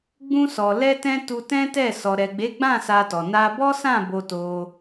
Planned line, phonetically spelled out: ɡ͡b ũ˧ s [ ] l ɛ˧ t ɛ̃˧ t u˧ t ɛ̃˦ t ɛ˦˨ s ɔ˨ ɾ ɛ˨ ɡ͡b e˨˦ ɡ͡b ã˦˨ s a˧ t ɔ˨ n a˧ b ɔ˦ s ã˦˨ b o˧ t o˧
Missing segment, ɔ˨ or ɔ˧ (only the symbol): ɔ˨